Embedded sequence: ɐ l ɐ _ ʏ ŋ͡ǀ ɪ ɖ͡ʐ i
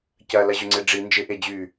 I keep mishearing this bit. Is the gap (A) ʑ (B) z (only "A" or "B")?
A